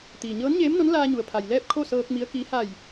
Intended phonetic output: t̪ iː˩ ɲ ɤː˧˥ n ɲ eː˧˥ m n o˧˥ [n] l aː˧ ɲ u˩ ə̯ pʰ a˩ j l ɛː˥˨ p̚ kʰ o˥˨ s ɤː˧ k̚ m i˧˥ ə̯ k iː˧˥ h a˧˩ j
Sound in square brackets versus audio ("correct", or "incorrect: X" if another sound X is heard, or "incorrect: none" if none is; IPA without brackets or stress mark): correct